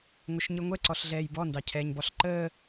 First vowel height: mid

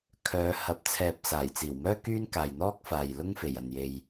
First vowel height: mid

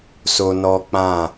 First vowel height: mid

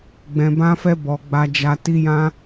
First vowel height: mid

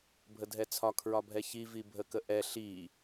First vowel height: mid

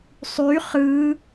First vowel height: high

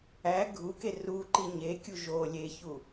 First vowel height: low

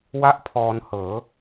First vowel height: low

